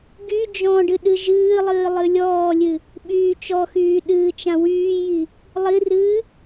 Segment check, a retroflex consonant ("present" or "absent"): present